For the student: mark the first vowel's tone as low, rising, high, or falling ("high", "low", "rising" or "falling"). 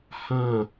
low